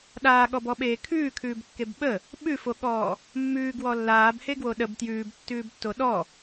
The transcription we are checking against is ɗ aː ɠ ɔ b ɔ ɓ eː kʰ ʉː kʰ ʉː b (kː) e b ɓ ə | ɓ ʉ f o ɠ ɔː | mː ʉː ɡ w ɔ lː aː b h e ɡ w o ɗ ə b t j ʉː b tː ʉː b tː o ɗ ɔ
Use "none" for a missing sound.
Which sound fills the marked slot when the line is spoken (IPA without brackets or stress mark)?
kː